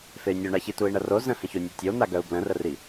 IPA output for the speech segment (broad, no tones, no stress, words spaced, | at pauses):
fey̯nʲoɳaçi tui̯ɳɐro zə̃hə̃ço nʲutʲon̪a ɡœu̯blə̃rəri